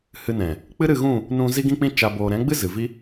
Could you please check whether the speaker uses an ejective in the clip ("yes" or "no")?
no